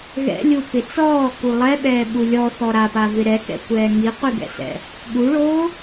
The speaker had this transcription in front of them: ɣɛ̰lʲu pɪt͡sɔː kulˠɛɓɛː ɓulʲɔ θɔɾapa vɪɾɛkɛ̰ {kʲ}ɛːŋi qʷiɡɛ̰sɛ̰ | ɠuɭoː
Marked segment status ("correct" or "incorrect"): incorrect